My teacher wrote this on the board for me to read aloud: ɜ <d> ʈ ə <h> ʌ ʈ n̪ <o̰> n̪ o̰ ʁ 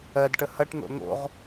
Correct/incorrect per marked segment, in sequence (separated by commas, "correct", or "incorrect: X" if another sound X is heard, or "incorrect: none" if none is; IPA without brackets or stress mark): correct, correct, correct